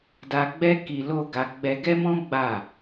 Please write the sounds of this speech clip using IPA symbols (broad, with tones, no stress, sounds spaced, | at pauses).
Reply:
d a˧ ɡ͡b ɛ˦ k i˧ l o˦ ɡ a˧ ɡ͡b ɛ˧ ɡ ɛ˦ m ɔ̃˦ ɡ͡b a˦˨